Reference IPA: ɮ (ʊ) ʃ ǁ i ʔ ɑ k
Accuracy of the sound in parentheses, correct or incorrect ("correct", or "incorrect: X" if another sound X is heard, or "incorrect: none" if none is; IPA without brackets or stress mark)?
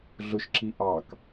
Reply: correct